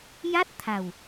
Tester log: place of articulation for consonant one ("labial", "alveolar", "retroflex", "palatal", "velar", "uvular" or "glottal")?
palatal